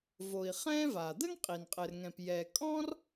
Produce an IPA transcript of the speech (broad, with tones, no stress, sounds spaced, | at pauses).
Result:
v o˩ i̯ χ ɛ̃ː˥ v a˩ d̪ ə˥ ŋ qʼ i˩ n qʼ ɘ˩ r ŋ ɛ̃˩ p j ɛ˩ kʼ ɔ̃˥ r